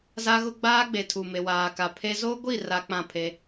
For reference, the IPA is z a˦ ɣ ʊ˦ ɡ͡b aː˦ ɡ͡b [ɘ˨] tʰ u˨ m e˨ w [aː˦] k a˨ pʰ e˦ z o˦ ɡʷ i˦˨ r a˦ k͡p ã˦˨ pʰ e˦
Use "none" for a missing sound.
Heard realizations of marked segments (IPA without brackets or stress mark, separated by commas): e˨, aː˨